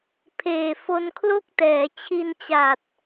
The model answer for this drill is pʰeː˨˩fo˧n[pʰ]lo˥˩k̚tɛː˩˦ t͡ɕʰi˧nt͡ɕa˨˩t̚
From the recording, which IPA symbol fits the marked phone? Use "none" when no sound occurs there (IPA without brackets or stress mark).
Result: kʰ